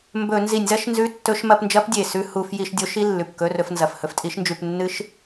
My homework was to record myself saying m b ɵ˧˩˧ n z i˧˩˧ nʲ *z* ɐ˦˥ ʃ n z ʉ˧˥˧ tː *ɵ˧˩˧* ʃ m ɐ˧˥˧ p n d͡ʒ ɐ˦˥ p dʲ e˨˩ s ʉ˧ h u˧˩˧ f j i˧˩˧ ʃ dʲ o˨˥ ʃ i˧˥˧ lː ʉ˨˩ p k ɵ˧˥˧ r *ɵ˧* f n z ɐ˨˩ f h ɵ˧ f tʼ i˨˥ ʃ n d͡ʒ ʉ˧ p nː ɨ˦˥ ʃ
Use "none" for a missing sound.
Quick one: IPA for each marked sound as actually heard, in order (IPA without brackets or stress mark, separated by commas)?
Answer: z, ɵ˧˥˧, ɵ˧˥˧